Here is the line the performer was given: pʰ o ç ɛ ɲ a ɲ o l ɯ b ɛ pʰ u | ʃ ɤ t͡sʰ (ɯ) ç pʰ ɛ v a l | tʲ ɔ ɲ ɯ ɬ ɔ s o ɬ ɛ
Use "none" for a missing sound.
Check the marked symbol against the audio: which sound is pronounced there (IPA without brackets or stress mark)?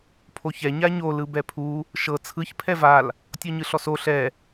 ɯ